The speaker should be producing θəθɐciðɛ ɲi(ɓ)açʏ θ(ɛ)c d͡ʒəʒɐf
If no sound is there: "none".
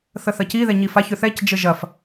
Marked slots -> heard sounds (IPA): f, ɛ

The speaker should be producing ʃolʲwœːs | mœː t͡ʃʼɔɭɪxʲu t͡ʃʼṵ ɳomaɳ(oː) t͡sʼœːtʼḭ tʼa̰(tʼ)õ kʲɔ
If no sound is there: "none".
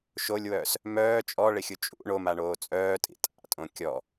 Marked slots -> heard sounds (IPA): oː, tʼ

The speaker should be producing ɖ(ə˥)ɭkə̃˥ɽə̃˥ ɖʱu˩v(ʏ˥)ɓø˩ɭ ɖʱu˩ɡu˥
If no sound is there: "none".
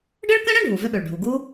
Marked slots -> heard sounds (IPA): ə˥, ʏ˥

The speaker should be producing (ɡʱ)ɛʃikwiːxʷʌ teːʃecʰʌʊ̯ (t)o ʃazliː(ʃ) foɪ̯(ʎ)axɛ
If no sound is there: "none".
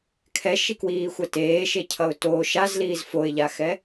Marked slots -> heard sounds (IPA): kʰ, t, z, ʎ

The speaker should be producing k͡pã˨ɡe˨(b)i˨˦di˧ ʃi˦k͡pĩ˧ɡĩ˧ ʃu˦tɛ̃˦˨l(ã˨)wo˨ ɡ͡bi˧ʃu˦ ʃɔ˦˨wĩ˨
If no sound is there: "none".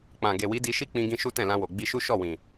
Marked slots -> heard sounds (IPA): w, ã˧

